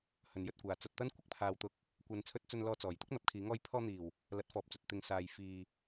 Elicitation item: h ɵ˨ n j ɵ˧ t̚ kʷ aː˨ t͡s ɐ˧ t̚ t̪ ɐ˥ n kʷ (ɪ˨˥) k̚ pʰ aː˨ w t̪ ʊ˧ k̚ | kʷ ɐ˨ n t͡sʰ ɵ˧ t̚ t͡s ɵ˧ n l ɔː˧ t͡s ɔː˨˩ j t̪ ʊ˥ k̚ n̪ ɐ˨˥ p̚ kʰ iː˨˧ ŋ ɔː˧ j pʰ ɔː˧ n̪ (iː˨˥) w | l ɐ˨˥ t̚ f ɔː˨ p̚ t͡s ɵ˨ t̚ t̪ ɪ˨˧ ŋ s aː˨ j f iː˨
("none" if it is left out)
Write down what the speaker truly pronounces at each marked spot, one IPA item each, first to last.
ɪ˥, iː˨˩

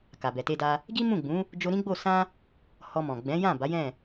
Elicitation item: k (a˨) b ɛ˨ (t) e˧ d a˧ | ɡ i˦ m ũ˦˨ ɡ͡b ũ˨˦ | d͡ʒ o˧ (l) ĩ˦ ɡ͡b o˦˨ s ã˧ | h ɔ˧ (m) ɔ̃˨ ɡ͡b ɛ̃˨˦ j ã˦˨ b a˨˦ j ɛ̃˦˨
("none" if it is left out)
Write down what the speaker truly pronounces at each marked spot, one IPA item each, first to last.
a˨, t, ɾ, m

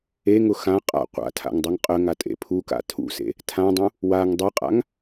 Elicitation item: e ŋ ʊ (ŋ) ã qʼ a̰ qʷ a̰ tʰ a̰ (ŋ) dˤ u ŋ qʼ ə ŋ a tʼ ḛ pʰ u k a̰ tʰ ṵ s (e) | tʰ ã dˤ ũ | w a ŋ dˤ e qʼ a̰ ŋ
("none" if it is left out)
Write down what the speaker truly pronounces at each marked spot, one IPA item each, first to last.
x, ŋ, ḛ

